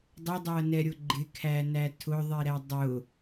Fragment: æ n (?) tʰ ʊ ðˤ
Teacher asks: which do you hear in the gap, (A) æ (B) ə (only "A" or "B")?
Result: A